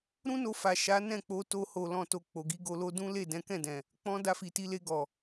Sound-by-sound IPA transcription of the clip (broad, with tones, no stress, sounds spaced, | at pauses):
ɾ ũ˦ n o˧ f a˨ ʃ a˨˦ n ɛ̃˦˨ k͡p o˧ t o˧ h o˨ l ɔ̃˨ t o˨ k͡p o˨ ɡ i˨˦ ɡ o˧ l o˦ d ũ˦ l e˦˨ d ɛ̃˨˦ k ɛ̃˦˨ d ɛ̃˨ | k͡p ɔ̃˧ d a˧ f i˨ t i˨˦ l e˧ ɡ ɔ˨